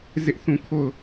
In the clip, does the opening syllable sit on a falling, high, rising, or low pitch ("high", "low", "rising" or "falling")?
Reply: high